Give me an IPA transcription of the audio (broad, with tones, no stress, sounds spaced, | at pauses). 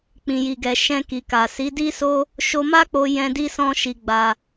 k͡p ĩ˨ j i˨ ɡ ɛ˨ ʃ ɛ̃˧ k i˨ k a˨ s i˨˦ d i˦ s o˦ | ʃ o˧ m a˦ k͡p o˧ j ɛ̃˧ d i˦ s ɔ̃˦ ʃ i˧ ɡ͡b a˧